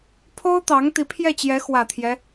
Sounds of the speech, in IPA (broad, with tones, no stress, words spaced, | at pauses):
pʰo˥ʊ̯t̪ɑ˧˥ŋ t̪i˧˥pʰjɛ˥˩t͡ɕjɛ˧˥ xwä˨˩t̪ʰjɛ˦